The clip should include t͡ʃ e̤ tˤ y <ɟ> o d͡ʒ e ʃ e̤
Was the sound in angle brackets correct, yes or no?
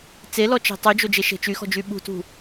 no